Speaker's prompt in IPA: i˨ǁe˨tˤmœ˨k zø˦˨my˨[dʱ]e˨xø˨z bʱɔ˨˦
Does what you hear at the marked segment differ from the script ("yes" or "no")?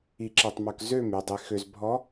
yes